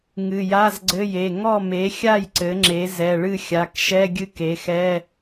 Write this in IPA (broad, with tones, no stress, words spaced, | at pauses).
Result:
ŋɨ˩˧˩ja˧˥˧zɡ͡ǀɘ˧˥˧je˩˧˩ ŋɔ˥˨me˩˥xʲa˥˨j ǀɘ˩˥ŋ͡ǁe˩˥ zɛ˩˧˩ɭɨ˥˨ xʲa˩˧˩kʃɛ˧˥˧ ɡʲɨ˥˨ke˩˥xɛ˧˥˧